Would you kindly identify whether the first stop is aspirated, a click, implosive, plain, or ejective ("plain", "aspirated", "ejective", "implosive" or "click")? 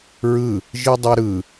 plain